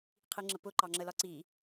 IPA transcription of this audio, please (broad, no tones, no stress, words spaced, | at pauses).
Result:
qʰiŋ͡ǁəpʊ ǃɑŋ͡ǁəlɒǀi